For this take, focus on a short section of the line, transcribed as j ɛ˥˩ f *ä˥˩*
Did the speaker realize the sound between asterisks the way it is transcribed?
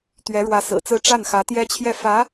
no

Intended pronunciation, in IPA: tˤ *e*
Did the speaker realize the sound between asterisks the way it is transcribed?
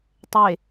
yes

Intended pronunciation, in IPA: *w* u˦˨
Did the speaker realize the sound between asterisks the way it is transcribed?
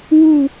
yes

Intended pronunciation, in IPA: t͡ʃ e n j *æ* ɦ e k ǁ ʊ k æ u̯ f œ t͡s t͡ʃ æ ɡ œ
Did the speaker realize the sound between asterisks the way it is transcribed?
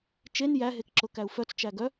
yes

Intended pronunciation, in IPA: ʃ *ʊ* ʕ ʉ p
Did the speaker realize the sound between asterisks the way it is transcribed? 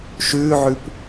no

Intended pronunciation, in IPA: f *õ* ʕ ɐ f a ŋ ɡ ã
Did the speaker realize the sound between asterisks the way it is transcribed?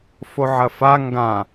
no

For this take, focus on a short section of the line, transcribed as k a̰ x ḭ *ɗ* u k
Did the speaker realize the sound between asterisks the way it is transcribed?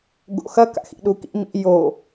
yes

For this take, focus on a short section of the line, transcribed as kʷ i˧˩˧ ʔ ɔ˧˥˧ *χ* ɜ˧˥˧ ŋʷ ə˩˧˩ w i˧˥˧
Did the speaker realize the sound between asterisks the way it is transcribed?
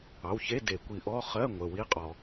yes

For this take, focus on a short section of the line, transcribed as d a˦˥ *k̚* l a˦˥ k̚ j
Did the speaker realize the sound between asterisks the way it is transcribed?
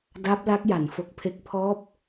no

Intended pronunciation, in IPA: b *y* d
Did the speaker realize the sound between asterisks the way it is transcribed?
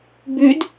yes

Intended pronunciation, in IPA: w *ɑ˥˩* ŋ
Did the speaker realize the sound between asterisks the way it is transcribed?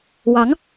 no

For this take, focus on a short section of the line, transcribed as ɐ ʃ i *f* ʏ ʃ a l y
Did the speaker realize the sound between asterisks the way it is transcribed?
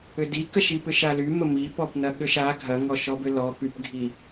no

